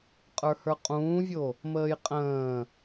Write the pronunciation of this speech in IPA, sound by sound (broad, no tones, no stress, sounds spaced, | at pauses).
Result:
qʼ ə˞ h ə˞ qʼ ũː vʲ o | m əː j qʼ ə̃ː